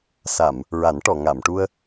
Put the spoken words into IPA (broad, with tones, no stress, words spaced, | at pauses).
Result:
sa˨˩˨m | ɹa˨˩˦nʈɔ˨˩˨ŋa˨˩˨mʈu˧ə̯